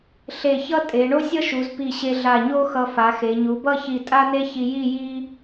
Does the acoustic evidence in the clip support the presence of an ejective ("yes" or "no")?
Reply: yes